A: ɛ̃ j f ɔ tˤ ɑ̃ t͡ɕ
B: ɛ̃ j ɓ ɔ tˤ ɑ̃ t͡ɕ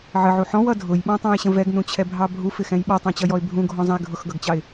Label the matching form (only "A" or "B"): B